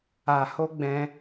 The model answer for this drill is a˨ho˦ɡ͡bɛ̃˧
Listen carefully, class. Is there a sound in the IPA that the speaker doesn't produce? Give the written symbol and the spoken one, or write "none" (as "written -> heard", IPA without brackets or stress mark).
none